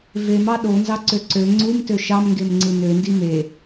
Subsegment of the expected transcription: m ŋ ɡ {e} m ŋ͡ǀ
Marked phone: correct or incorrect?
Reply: correct